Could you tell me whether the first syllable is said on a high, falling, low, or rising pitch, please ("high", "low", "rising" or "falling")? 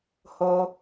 low